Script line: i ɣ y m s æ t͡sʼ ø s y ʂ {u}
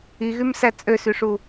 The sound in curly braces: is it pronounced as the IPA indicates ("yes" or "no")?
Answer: yes